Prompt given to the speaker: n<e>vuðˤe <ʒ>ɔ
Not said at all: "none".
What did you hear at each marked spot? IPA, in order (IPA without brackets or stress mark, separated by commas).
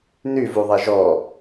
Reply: y, ʒ